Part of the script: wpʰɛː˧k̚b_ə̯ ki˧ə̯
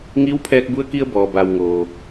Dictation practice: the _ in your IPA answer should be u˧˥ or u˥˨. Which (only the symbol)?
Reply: u˧˥